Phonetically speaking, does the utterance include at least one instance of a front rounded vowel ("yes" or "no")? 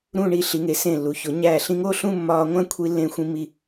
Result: no